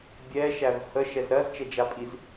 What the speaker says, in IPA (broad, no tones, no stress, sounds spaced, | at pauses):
bʲ ɛ ʃ æ v h ə ʃ ɛ z ɾ ɜ z t͡ʃ ɛ d͡ʒ a pʼ i z